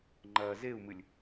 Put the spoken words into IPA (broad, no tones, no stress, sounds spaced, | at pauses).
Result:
ŋ͡ǃ ɐː z e u̯ m ɨ lʲ